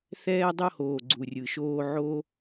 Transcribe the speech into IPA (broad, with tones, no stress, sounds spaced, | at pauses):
θ ɛː˦ dˤ o˦ h oː˨ ɡ͡ǀ u˨ rʲ ɯ˨ ʃ oː˦ ʕ o˦